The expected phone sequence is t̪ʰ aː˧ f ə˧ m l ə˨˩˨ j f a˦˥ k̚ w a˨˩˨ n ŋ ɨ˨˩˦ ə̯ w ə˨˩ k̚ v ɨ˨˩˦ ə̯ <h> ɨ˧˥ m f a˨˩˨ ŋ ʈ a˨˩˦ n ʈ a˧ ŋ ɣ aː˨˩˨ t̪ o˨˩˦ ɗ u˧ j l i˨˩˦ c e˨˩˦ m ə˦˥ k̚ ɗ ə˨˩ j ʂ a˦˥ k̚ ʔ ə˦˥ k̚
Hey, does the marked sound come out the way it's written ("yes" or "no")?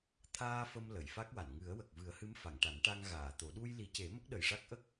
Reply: yes